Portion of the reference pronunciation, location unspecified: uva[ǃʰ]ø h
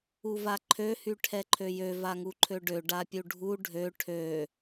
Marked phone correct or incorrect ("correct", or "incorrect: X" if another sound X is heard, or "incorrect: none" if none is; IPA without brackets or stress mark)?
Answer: correct